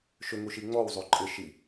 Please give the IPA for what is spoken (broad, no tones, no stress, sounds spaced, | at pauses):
ʃ ʏ ŋ u ʃ i ŋ͡m ɔ w zˤ o ǃʼ ɪ ʃ i